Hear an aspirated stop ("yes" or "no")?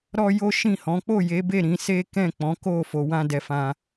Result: no